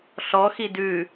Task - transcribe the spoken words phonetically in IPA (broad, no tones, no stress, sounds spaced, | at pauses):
ɬ ɔ x i d ʉ